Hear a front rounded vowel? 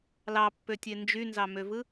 yes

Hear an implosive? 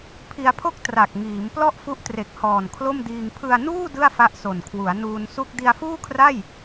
no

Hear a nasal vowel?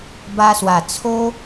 no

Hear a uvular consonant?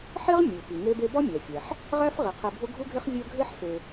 yes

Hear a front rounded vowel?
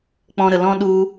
no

